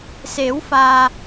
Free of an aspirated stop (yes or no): yes